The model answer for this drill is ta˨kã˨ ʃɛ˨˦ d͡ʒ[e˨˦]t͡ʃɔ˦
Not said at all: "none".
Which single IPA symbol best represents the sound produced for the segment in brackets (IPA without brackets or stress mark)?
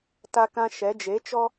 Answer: e˨˦